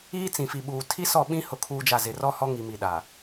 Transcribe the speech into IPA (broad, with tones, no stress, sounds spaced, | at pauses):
iː˦ t͡s ĩ˨ f i˨ ɓ uː˨ tʰ i˦ s ɔ˦˨ ɓ ĩ˦ h ʊ˦ kʰ uː˦ d͡ʒ a˦˨ z ɪ˨ r ɔ˦ h ɔ˦ ŋ i˨ m i˨ ɗ a˨